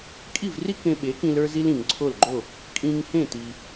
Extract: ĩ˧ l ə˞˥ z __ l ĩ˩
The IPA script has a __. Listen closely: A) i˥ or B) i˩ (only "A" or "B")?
A